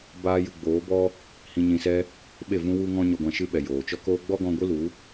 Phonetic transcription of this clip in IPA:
baː˦jɨ˧ ɡ͡boː˨˦bɔ˦ | hĩ˧ɲĩ˧sɛ˦ | ɓe˦˨vũ˦ wu˦ŋɔ̃˦ ɲɔ˧ɡʷã˧ʃɨ˦ɓɛ˨ joː˨t͡ʃɔ˦koː˦ ɡ͡bɔ˦ɡɔ̃˧ɡʷɨ˦lu˨˦

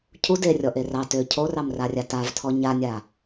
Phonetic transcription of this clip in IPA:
cʰu derʲɔ ʔerɑ tø cʰorɑmrarʲa tavtʰɔ ɲanʲa

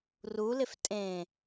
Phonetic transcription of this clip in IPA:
rulɪf tʼẽ

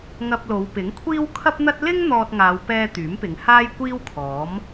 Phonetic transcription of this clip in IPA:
ŋɐ˧p̚lo˨˧w pɪ˨˥ŋkʷʰiː˥w kʰɐ˥p̚n̪ɐ˥t̚ lɪ˥ŋ n̪ɔː˧t̚ŋaː˨˧wpɛː˧ t̪yː˨˥mpɪ˨˧ŋ haː˥jkʷiː˥wkʰɔː˨˥m

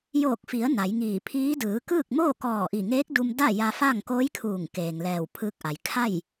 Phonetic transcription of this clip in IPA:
joː˧˩k̚fi˩˧ə̯ na˩˧jŋiː˧˩pʰiː˧˥ dɯː˩˧kɯː˥˨k̚ moː˥˨kɔː˧˩ʔi˧˩ŋeː˧˥k̚ du˧m da˥˨ja˧fa˥˨ŋ koː˧˥jkʰuː˧˩ŋ keː˩ŋlɛː˧˩wpʰɯː˧k̚ʔa˩j kʰa˥˨j

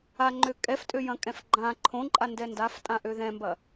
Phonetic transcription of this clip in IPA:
aŋ͡ǃø kʼɛftʼøjɐ̃kʼɛ̃f ɡ͡ǃã ǃʰõǃʼandɛ ndaftʼãʔø ðɛ̃mbɐ

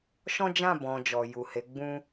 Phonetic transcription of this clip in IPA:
ʃɔ̃˦d͡ʒã˦˨bɔ̃˨ d͡ʒɔ˨ ju˨he˨˦ ɡ͡bũ˦

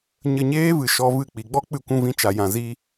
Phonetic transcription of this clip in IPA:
ɲə˧ɲeː˦vɨ˨ ʃɔ˧vɨ˦˨ k͡pi˨ɡ͡bɔ˦ k͡pɨ˧kʷũ˧vĩ˧t͡ʃa˨ jã˨zi˧

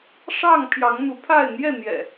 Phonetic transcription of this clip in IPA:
ʂɑ˥˨ŋ pʰjɑ˨˦ŋn̪u˨˦pʰa˥˨ɪ̯ n̪jɛ˥˨n̪jɛ̰˨˩

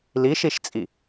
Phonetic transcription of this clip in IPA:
liʃiʃt͡sʼi

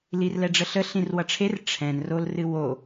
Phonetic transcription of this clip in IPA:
lirlɛɖ͡ʐəɬə ɬĩrwʌʈ͡ʂʰer ʈ͡ʂʰɛ̃n rolrɨwo

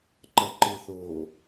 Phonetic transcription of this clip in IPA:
ǃɐǃɨθo

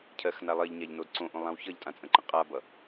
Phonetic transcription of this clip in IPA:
cʰɜxna lˠɜʎɲaʎnod ǀõʔõlˠãw çʌʎtʼãt͡sʼə̃ǃə̃ qʼabʌ

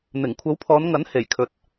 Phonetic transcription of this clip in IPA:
n̪ɪ˨˩ŋ kʷʰɐ˨˥wpʰɔː˨˧nŋɐ˨˥n he˨˩jkʰɵ˨t̚

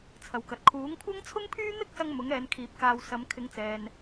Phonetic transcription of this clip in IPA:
t͡sʰɐ˨wkɐ˨t̚ kʰuː˨˥ŋkʷʰɐ˥ŋ t͡sʰʊ˥ŋpʰyː˥n̪ɪ˥k̚sɐ˧ŋ mʊ˨˥ŋɛː˨˧nkʰiː˨p̚ kaː˨w sɐ˨˧m kʰɪ˨˧ŋt͡sɛː˨n

